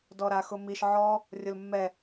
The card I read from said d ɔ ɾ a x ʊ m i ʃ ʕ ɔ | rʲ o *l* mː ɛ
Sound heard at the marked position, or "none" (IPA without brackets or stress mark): l